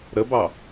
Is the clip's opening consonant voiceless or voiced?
voiced